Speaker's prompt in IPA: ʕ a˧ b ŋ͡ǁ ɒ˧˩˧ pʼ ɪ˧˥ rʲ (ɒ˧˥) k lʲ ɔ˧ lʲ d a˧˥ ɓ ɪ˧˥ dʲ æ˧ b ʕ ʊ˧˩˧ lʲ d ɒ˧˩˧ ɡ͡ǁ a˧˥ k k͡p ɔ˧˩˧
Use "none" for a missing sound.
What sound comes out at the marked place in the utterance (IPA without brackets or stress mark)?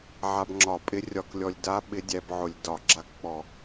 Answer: ɒ˧˥